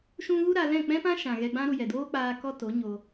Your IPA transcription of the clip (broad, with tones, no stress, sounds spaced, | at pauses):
ʃ ũ˧ ɣ u˦ ɾ a˧ l ɛ̃˦˨ k͡p ɛ̃˦ p ã˦ ʃ ã˨ ɣ ɛ˧ ɡ͡b ã˦ ɾ u˧ j ɛ˨ d oː˦ k͡p aː˧ k ɔ˦ t o˨˦ ɲ o˧